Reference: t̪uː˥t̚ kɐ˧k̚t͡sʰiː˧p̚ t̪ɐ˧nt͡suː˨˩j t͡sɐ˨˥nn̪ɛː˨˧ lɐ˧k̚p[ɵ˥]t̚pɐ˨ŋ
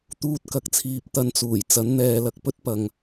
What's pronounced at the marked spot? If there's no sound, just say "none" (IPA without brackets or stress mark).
ɵ˥